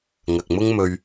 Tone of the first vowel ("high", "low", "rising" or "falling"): low